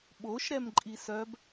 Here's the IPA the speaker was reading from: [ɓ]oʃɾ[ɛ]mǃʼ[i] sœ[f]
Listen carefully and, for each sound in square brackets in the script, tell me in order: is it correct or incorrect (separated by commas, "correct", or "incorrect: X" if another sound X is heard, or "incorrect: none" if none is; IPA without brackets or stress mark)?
correct, correct, correct, incorrect: b